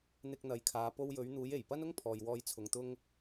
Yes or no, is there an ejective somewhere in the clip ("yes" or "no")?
no